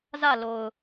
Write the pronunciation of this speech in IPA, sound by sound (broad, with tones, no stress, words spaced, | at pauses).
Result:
zä˦˨lo˨ʊ̯